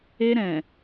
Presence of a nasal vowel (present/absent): present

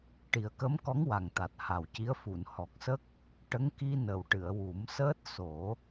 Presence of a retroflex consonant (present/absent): present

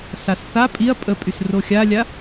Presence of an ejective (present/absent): present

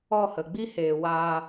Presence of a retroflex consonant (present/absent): absent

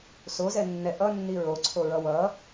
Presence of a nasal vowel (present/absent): absent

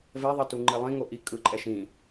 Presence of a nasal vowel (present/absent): present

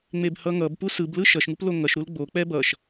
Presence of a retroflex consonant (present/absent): absent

